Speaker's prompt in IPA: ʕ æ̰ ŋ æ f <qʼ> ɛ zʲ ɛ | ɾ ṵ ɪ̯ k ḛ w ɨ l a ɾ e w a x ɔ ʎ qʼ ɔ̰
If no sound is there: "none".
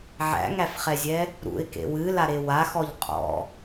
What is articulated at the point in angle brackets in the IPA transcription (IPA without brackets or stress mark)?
χ